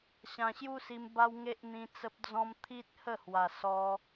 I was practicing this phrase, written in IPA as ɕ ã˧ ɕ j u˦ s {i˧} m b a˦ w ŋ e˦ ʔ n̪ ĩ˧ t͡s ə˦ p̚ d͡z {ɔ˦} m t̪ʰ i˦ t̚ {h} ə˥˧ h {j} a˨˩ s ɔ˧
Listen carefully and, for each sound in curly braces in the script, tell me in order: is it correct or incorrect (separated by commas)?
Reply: correct, incorrect, correct, incorrect